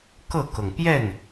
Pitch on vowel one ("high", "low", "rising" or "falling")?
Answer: falling